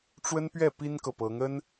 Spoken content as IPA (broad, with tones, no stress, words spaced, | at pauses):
ʈ͡ʂwə˥npɥɛ˥˩pi˥nkɤ˨ pɤ˧˥ŋə˥n